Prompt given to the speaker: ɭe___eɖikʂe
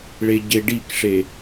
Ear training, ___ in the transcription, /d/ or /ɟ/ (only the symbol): ɟ